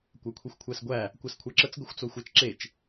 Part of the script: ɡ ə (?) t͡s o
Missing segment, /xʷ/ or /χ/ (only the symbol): xʷ